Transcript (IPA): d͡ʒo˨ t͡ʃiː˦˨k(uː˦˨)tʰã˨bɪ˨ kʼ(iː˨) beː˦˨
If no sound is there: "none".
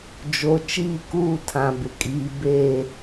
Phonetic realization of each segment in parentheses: uː˦˨, iː˨

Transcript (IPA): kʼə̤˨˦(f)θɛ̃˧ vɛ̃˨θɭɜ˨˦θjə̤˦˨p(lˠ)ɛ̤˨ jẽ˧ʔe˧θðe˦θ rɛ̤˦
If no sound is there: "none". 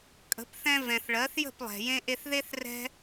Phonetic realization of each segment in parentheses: p, lˠ

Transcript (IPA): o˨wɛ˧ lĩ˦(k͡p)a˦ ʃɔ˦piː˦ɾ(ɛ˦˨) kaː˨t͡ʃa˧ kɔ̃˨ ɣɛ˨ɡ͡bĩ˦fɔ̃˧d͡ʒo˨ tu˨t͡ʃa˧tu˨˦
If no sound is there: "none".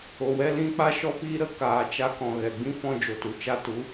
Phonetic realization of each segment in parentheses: k͡p, ə˦˨

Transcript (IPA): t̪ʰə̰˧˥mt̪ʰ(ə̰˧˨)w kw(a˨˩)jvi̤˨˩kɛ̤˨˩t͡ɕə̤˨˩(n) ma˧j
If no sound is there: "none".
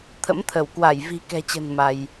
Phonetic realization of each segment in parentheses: ə˧˩, a˧˩, n

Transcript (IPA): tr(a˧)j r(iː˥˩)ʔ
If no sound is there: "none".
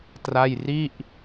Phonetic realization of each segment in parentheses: a˥˩, i˥˩

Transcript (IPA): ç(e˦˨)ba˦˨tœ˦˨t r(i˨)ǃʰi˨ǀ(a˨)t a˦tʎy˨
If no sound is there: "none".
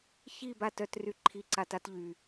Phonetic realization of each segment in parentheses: i˦˨, y˨, a˨

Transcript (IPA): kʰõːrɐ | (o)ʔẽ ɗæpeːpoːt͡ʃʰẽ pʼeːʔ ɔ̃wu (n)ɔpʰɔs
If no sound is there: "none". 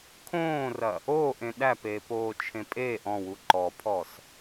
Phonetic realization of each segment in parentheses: oː, ǃ

